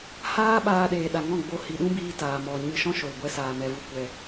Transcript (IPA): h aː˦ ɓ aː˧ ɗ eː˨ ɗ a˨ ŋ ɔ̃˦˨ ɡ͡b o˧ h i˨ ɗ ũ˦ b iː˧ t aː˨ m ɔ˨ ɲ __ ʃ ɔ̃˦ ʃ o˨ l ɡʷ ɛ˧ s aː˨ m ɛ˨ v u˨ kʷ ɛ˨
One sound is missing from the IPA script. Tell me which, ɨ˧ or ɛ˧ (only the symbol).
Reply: ɨ˧